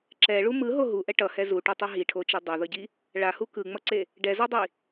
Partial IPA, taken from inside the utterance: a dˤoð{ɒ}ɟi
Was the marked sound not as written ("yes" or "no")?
yes